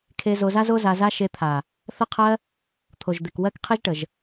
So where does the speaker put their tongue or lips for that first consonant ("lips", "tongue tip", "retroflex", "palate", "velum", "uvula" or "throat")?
velum